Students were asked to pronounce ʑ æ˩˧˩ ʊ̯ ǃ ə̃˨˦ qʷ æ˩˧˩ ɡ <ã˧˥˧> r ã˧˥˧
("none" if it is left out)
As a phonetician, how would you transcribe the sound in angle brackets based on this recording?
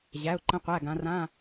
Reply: ã˨˦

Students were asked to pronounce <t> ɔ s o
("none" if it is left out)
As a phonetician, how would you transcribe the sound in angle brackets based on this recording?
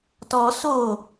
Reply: t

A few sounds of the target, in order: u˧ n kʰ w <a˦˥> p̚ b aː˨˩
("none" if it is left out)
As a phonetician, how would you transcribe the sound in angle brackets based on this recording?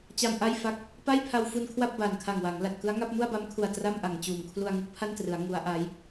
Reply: a˥˩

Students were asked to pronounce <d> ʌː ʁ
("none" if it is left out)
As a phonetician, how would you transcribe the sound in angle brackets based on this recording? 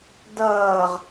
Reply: d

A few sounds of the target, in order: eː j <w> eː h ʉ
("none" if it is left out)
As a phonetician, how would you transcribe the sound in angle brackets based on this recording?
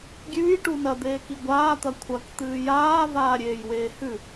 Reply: w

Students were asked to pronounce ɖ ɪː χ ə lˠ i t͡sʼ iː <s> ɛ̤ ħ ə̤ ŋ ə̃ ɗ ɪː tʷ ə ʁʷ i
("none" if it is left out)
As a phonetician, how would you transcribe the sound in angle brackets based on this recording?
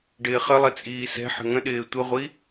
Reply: s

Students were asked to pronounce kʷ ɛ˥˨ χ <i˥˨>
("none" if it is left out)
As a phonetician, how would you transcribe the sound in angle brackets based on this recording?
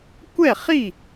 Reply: i˥˨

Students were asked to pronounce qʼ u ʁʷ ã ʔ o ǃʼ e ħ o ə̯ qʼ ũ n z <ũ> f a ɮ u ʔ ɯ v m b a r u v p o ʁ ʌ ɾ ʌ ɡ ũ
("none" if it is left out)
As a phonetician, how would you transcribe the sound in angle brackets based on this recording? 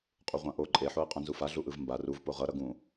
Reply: u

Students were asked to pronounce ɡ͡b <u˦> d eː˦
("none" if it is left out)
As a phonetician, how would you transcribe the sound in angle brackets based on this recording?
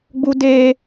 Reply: u˦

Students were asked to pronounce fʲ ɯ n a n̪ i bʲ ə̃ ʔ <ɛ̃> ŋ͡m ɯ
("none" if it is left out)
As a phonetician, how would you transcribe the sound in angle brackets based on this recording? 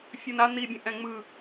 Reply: ɛ̃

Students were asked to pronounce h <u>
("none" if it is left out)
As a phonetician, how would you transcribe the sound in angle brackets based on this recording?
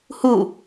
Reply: u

